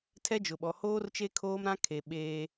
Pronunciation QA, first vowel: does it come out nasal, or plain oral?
oral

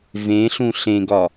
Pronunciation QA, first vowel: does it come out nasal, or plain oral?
nasal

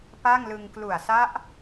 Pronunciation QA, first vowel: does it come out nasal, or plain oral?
oral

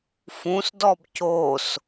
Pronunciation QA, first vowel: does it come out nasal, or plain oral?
nasal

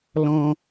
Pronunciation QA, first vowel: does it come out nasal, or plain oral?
nasal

